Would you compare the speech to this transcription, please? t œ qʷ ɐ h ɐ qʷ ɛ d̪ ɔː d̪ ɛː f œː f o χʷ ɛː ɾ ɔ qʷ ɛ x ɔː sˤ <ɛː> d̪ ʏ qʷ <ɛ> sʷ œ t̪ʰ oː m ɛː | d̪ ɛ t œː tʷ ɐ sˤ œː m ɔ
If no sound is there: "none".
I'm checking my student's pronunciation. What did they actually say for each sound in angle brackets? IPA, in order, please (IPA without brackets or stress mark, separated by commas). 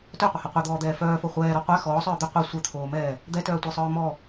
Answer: œː, ɛ